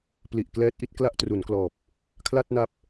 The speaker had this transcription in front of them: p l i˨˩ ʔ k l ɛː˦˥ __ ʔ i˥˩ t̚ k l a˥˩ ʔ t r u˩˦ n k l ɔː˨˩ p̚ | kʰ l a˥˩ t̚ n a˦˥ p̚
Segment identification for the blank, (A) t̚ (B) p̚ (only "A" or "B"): A